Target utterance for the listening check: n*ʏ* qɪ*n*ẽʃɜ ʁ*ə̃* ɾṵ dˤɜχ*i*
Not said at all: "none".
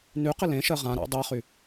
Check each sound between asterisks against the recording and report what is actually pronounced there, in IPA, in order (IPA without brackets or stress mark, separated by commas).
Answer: y, l, ã, y